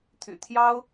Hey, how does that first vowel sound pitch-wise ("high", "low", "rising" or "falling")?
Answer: low